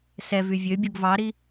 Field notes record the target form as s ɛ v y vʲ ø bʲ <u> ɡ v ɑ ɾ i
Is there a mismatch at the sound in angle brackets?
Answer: no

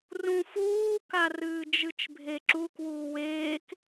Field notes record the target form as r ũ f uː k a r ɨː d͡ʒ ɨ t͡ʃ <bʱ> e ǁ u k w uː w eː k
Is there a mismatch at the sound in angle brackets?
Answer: no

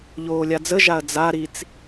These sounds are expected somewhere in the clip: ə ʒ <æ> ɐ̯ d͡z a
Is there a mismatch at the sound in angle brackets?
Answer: yes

